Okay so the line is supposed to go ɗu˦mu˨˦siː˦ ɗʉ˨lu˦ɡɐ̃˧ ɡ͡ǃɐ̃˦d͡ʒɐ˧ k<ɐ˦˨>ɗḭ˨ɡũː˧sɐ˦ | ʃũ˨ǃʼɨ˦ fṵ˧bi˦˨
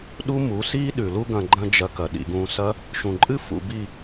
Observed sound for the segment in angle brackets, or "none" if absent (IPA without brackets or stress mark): ɐ˨